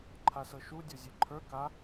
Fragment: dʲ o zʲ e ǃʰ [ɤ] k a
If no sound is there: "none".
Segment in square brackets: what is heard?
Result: ə˞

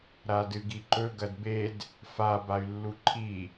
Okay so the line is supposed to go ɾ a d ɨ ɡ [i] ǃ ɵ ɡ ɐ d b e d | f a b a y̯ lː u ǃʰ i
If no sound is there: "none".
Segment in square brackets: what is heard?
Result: i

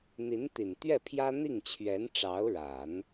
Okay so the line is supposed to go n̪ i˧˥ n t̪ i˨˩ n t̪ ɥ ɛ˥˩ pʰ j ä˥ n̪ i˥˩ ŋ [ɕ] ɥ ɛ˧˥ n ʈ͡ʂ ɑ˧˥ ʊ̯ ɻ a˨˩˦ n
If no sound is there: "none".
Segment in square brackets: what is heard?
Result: t͡ɕʰ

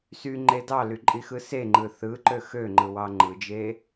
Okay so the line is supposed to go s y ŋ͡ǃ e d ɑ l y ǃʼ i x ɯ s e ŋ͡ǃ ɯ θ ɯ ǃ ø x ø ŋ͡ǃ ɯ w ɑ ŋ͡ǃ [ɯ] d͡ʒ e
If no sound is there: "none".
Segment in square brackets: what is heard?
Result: ɯ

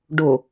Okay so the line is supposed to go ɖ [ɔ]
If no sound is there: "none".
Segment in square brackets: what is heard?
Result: ʊ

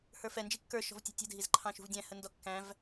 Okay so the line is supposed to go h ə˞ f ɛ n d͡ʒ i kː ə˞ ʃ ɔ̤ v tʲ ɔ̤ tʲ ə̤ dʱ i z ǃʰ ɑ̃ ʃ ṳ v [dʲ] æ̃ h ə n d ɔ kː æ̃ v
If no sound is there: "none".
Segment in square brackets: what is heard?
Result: dʲ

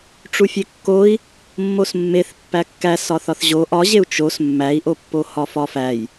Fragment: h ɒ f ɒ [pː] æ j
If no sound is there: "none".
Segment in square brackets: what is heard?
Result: f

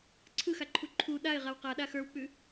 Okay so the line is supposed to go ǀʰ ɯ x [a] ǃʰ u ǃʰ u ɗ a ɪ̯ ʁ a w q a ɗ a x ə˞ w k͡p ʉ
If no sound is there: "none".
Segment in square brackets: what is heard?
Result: a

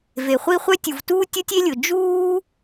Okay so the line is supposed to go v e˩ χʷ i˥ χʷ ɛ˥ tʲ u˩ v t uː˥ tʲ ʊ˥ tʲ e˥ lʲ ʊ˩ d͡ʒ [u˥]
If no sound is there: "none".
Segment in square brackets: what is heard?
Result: uː˥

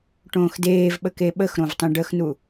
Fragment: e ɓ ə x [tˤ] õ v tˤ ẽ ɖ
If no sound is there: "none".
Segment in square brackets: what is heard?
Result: ɾ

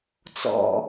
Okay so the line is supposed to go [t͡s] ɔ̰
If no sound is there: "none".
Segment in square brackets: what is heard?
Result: t͡s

